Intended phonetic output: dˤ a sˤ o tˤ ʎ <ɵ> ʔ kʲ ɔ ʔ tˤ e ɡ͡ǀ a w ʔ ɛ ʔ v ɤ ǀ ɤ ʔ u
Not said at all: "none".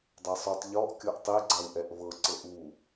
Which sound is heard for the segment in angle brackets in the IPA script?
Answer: ɔ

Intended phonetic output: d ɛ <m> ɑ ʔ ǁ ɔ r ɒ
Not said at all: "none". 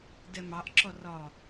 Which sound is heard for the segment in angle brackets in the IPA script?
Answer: m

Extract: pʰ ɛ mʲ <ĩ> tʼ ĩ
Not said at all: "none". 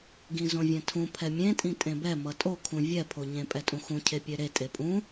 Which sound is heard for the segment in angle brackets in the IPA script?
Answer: ẽ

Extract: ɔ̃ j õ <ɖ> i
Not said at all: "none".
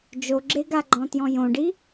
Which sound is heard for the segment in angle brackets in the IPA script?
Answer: ɖ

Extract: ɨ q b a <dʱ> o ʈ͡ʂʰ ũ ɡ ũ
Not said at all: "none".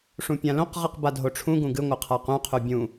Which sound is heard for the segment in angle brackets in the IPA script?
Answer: dʱ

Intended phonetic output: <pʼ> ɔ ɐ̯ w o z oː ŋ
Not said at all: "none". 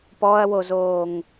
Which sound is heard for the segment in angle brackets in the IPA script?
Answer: p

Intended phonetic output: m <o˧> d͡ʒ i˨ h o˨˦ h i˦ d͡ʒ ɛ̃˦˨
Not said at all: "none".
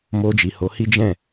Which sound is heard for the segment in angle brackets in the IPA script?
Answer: o˧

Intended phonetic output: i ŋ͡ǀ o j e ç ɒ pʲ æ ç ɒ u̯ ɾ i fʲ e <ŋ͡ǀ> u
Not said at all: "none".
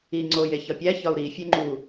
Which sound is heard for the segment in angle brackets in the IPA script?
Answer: ŋ͡ǃ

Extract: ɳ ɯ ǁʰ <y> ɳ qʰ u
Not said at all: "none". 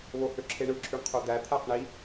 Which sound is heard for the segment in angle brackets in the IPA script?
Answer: y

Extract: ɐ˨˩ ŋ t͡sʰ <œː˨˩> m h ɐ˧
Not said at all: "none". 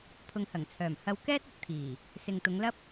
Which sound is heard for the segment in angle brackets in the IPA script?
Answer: œː˨˩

